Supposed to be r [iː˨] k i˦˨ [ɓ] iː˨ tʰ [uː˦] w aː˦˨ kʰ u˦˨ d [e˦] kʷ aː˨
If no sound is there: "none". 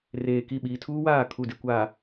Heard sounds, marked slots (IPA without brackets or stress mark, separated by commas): eː˨, ɓ, uː˦, e˦